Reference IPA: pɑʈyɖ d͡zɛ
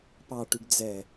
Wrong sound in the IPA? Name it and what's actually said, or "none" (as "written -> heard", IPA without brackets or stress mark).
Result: none